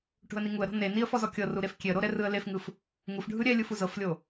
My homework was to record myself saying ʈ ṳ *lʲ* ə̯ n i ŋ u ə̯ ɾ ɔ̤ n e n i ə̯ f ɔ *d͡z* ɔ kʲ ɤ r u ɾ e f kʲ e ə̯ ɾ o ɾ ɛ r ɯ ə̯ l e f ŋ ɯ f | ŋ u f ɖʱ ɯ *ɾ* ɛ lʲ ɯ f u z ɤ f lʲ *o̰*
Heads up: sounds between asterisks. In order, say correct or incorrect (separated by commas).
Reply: incorrect, incorrect, incorrect, incorrect